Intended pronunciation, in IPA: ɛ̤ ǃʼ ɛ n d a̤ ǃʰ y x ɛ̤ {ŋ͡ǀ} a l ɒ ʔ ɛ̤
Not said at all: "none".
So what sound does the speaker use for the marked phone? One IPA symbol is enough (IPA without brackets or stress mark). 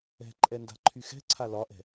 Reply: ǀʰ